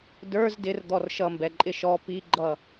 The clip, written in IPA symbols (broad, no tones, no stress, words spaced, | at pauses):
də˞z dɪrd̪ɔr ʃʌmbɛǃʼɪ ʃɔ piɡ͡ǃʌ